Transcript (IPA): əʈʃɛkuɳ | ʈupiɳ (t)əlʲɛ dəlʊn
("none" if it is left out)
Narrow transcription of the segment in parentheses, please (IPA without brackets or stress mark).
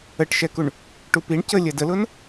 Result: c